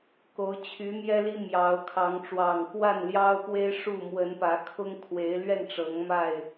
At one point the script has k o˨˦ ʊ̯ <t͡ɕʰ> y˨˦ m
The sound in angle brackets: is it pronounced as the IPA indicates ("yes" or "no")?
yes